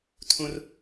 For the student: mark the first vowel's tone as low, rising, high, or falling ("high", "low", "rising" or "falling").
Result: high